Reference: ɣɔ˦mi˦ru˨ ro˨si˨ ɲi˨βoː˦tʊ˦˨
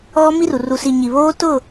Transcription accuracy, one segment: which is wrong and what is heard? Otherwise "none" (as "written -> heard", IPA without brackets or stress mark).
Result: o˨ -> u˨